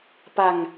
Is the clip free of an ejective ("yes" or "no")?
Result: yes